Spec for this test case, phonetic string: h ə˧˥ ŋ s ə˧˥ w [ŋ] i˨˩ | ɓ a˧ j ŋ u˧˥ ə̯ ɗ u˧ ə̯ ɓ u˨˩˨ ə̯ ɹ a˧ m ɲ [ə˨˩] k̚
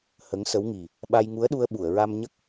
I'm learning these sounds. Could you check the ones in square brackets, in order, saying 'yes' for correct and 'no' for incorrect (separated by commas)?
yes, no